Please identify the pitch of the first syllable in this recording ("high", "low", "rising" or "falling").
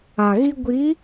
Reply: low